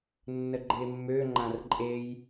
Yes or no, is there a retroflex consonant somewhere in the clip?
no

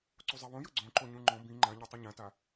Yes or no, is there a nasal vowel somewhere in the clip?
yes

